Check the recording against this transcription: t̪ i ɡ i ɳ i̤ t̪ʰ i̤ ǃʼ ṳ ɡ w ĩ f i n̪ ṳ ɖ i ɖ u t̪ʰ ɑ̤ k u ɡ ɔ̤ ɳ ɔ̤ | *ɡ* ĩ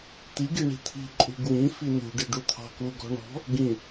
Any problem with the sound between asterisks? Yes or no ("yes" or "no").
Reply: no